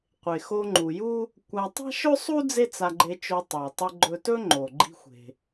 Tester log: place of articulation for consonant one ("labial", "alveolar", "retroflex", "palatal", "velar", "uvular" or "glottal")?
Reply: uvular